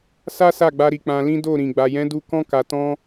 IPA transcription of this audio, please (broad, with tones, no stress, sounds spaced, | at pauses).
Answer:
s a˦ s a˦˨ ɡ͡b a˧ ɾ i˨ k͡p ã˧ l ĩ˦ d o˦˨ ɾ ĩ˨ ɡ͡b a˨ j ɛ̃˨˦ d u˧ k ɔ̃˦ k a˧ t ɔ̃˦